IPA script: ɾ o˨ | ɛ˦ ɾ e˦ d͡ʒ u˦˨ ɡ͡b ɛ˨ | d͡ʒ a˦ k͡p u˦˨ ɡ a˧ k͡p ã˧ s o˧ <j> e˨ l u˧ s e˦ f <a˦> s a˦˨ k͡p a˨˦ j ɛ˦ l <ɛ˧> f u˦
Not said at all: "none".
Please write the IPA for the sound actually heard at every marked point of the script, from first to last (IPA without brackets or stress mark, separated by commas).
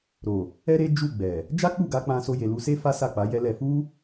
j, a˦, ɛ˧